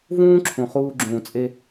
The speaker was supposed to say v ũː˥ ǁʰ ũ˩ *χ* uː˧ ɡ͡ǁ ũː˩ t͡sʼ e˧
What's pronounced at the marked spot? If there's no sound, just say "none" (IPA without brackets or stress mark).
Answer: χ